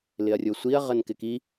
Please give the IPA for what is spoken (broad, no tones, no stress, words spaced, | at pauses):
lɪɐ̯rʲosʷiɐ̯ ʁənkɪki